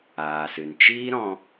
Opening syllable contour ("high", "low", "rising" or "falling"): low